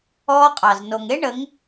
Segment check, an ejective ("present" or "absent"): present